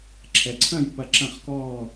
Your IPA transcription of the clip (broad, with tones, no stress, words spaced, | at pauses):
ǁʰɛ˩˧ ǀʰɐ̃˥˩j pɐ˥˩ ǁɐ̃˥˩χkɔː˥˩